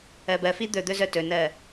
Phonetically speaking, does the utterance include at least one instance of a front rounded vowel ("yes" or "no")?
yes